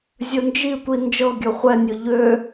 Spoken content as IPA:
zʲ ɵ n d͡ʒ i tʷ i n d͡ʒ ɤ ɡʲ ɵ χʷ ɛ nʲ ɵ ʎ ø

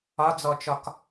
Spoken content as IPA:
ɒ d͡z ɔ t͡ʃ ɒ k

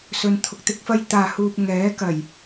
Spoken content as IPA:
s ɵ˧ n t̪ʰ ʊ˧ k̚ t̪ ɪ˥ k̚ f ɐ˥ j t̪ aː˨ h uː˨ p̚ ŋ ɛː˨˥ k ɐ˨˩ j

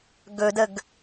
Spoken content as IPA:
ɡ ɵ d ə ɡ

